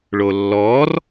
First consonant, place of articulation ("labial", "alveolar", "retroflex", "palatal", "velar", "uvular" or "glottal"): retroflex